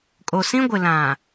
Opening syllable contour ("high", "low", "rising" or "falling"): low